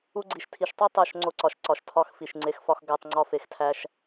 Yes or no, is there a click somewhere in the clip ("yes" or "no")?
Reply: yes